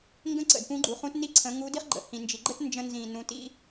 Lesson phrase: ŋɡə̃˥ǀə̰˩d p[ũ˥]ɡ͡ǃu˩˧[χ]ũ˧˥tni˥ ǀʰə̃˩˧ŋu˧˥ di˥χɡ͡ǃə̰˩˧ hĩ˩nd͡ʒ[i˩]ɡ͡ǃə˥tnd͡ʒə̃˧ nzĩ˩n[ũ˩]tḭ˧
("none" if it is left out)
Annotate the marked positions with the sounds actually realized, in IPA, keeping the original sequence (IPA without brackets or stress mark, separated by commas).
ũ˧˥, χ, i˩, ũ˩˧